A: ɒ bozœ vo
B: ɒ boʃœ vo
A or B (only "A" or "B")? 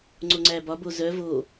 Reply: A